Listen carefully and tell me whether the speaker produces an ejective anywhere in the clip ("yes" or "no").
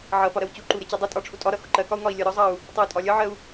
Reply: yes